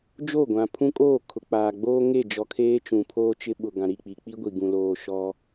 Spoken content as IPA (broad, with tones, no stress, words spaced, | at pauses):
d͡ʒo˦˨ɡʷã˨pʰũ˦kʼoː˦˨ kʰʊ˨k͡paː˨ɡ͡boː˦ ŋe˦˨d͡ʒɔ˨kʰeː˦ t͡ʃũ˨pʰoː˦t͡ʃɪ˦ ɓʊ˨ ɡã˨ɾi˦˨k͡pi˨ k͡pi˦ɡʷi˨ ɡũ˨loː˨ ʃɔ˦